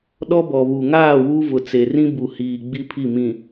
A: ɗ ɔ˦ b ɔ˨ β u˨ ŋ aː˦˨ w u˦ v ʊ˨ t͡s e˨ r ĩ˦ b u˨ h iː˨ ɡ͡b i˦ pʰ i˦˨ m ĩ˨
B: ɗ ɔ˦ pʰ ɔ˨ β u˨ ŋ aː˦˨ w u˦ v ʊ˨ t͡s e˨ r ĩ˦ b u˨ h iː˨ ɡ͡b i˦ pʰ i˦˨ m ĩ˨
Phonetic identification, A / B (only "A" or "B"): A